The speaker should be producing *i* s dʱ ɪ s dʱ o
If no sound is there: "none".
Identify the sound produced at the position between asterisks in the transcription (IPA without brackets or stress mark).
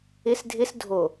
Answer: ɪ